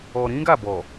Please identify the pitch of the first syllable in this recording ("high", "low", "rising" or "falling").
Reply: low